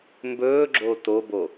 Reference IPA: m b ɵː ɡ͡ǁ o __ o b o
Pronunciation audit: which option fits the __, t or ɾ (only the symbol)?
t